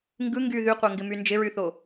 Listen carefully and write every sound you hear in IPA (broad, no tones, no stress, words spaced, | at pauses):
ŋɡɯ ŋɡy ðyqʷœŋɡɪmy nd͡ʒɪɹyθo